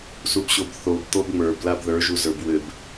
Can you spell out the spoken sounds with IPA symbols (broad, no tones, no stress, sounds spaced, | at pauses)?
s u b ɕ o b θ o b t̪ o b ŋ͡m ə˞ b l a b ð ə˞ ʒ u z ə˞ b w ɘ b